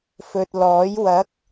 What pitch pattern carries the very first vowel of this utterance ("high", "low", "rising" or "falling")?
low